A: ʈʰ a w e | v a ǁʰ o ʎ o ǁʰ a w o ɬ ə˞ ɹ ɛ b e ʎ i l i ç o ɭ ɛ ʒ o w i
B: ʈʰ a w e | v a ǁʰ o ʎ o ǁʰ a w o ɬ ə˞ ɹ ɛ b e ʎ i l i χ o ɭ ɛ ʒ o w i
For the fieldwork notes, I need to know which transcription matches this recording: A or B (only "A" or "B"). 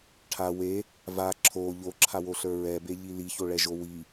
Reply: A